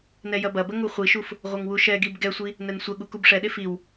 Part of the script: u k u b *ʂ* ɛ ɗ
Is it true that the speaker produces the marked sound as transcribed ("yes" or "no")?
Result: yes